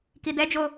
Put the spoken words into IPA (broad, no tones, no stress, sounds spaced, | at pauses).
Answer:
k i d ɛ d͡ʒ o